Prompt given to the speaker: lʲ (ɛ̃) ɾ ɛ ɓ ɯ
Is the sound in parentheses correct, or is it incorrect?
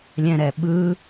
correct